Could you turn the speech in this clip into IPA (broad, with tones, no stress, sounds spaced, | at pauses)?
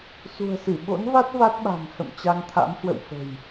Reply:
s ṳ˨˩ ə̯ s ɨ˧˩ ɓ o̰˧˥ n v a˦˥ t̚ v a˦˥ t̚ ɓ a̤˨˩ ŋ h ə̰˧˨ m t͡ɕ a˧ ŋ t̪ʰ a̰˧˥ m h w ə̰˧˨ w f ə̤˨˩ j